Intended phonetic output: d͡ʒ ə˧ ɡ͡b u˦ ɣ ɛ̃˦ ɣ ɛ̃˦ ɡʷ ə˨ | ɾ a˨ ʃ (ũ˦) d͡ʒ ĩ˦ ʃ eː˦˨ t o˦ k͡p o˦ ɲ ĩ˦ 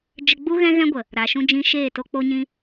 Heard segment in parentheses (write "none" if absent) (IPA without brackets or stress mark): ũ˦